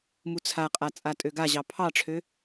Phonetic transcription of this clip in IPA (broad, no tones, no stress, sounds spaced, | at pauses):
m u t͡sʰ a qʼ a t͡sʼ a tʼ ø ɡ a ʑ ɑ pʰ ɑ ʈ͡ʂʰ ø